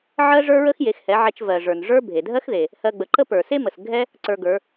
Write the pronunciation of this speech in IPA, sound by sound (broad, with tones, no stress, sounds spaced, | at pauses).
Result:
ʕ ɜ˥ ʐ ə˞˥ ɹ ə˥ x j e˩˧ x h ɛ˩˧ ʕ ɛ˧ t͡ʃ v ɜ˩ ʐ ə˞˩ n ʐ ə˞˥ bʱ e˩ dʱ ɜ˥ x ð e˩ | h ɜ˧ ɡ͡b ə˩˧ ǃ ə˥ p ə˞˩ s e˥ m ə˩ s ɡʱ ɛ˥ | ǀ ə˞˧ ɡ ə˞˩˧